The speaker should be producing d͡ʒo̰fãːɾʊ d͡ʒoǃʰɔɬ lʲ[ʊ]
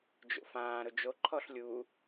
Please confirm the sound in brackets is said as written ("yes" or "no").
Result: no